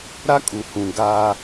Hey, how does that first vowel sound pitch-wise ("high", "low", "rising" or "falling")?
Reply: high